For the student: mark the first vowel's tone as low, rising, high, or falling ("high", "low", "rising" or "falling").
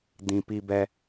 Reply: high